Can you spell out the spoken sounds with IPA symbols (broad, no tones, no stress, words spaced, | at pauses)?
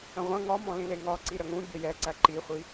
ə̃ʁʷə̃ ŋɒ mɔ̃lĩleŋɒ ǀiɾəŋũ bʲəjɛǀæ ǃiχʷi